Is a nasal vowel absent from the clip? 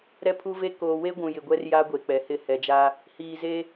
no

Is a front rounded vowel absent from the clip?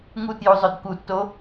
no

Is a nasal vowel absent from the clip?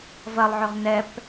yes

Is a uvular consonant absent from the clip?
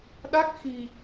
yes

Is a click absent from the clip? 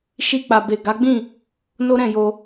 yes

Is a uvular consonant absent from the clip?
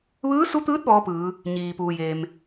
yes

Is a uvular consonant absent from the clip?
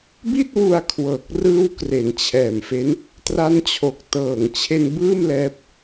yes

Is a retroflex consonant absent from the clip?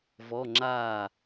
yes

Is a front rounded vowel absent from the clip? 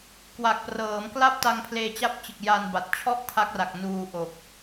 yes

